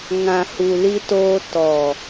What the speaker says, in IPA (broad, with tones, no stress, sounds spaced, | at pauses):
ŋ ã˨ h u˨ l i˦ t oː˦ t ɔ˨